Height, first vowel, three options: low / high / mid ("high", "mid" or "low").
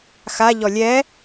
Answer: low